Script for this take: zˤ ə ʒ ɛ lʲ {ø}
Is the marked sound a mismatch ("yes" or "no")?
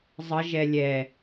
yes